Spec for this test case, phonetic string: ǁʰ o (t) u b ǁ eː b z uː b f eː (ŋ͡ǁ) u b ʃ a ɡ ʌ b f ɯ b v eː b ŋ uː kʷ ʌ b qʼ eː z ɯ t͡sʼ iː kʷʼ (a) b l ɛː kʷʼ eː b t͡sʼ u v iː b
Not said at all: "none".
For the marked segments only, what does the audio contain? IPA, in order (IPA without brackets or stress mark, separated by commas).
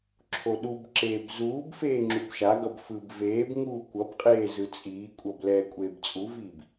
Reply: ɗ, ŋ͡ǁ, ʌ